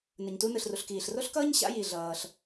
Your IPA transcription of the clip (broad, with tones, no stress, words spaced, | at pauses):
nɯ˩ɲtu˧nɯ˩ɬru˩ɬ kiː˩ɬro˥ɬkʌː˥ɲ ɕa̰˧ji˩ ɮʌː˩ɬ